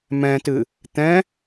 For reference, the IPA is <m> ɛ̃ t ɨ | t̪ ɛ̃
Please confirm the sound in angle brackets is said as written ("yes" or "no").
yes